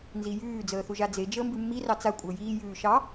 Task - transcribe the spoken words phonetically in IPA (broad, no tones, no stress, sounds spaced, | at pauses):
n z i j ʉː d͡z əː θ u ʒ a d͡z e d͡ʒ əː m b ʉ mː i r ɑ t͡s a kʷʼ əː j iː j ʉː ʃ ɑ